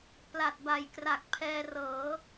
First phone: p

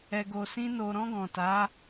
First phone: ɛ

